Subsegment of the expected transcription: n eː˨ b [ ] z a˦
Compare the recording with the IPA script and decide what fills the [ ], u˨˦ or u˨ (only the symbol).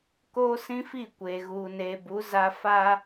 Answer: u˨˦